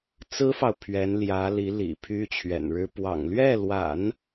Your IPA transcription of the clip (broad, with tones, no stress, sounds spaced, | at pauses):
t͡s ɹ̩˥ f ɑ˨ ʊ̯ pʰ ɥ ɛ˧˥ n l j ä˧˥ l i˧˥ l ḭ˨˩ pʰ y˥ t͡ɕʰ ɥ ɛ̰˨˩ n ɻ ɻ̩˥ p w ɑ̰˨˩ ŋ l ɥ ɛ˥˩ l w a̰˨˩˦ n